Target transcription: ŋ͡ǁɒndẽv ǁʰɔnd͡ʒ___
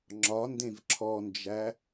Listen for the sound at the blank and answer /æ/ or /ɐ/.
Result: æ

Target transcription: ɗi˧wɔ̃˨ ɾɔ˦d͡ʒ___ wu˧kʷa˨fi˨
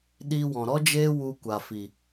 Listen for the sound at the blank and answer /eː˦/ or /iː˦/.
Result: eː˦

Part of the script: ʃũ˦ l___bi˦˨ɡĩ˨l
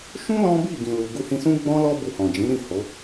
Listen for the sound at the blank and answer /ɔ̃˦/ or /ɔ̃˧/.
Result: ɔ̃˦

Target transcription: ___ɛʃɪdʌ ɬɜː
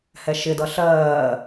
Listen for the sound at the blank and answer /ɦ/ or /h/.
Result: h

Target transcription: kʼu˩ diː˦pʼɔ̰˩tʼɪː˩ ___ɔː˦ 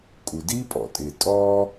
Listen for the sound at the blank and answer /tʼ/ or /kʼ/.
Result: tʼ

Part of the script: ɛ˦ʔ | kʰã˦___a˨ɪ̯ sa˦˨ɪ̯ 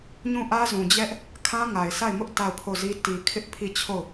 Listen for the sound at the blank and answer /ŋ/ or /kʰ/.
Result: ŋ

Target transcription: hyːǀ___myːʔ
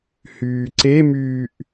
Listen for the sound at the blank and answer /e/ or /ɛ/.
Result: e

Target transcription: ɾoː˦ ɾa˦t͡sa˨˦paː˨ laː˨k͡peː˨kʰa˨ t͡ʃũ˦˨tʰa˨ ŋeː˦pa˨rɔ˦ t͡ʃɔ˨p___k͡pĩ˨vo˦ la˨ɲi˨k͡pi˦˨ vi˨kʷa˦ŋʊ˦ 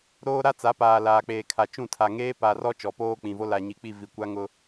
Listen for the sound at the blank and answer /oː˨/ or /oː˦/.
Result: oː˦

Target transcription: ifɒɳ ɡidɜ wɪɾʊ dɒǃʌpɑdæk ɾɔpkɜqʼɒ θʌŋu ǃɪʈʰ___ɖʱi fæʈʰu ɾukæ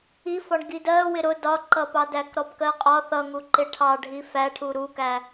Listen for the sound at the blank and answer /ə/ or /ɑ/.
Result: ɑ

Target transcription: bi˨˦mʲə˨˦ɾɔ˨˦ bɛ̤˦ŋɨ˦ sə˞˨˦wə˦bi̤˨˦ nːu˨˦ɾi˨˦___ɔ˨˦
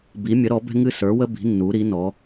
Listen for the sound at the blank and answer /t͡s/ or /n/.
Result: n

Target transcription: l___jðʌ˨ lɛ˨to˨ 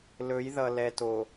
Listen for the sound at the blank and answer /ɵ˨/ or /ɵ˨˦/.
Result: ɵ˨˦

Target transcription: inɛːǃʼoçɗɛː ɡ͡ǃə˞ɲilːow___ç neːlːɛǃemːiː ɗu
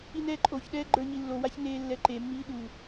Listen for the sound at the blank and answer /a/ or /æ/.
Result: a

